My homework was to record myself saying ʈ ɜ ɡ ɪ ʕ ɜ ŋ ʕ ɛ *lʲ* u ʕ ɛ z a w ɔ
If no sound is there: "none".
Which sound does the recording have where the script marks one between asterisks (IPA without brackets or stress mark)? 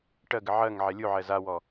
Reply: lʲ